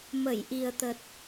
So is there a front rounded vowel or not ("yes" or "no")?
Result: no